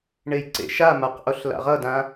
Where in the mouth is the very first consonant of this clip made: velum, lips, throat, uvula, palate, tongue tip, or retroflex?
retroflex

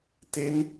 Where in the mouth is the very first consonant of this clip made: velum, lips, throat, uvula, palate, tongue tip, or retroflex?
tongue tip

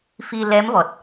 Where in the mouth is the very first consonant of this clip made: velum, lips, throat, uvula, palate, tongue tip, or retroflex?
lips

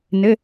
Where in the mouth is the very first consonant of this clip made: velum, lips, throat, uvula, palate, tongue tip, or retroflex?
tongue tip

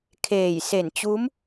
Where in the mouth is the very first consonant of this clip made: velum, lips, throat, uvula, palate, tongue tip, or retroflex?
velum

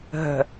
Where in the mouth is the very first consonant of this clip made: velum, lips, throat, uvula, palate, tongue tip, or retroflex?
throat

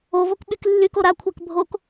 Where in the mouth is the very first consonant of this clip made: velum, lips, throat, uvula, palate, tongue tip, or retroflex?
lips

